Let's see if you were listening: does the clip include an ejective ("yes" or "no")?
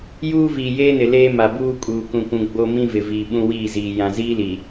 yes